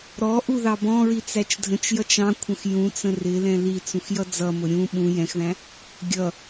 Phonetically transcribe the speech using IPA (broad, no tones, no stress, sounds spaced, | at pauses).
ɾ ɔ ʔ u ð ɑ b ɔ̃ ɹ i t͡s æ t͡ʃ dʱ ə̃ t͡ʃ j ʌ t͡ʃ ɑ̃ kʷʰ ə̃ x j ũ t͡s ə̃ r ɪ l ɛ̃ l i t͡s ũ x j ʌ d͡z ʌ m ʊ ɾʲ ũ ɓ ũ j ɛ̃ x ð æ̃ | ɡʲ ʌ